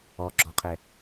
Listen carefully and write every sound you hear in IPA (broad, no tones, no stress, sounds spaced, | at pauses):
ɔ ɡ͡ǁ ɔ qʰ ɛ